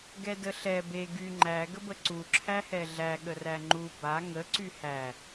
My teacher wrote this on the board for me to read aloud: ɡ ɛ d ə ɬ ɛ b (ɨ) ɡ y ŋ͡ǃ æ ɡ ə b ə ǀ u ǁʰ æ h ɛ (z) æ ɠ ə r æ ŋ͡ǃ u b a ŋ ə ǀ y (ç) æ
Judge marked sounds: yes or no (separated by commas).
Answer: no, no, no